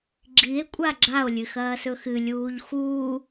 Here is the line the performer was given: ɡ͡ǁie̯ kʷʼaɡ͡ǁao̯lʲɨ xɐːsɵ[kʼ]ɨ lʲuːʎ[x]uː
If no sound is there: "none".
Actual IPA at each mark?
x, x

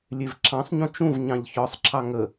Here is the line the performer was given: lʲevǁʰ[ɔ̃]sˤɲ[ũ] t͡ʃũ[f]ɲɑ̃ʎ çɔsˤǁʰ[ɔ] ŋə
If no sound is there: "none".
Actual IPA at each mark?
ɑ̃, ũ, v, ɑ

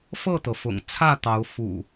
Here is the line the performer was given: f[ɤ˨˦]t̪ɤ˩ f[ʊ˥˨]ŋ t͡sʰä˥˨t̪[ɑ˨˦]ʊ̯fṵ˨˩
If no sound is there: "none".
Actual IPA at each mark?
ɤ˥˨, ʊ̰˨˩, ɑ˨˦

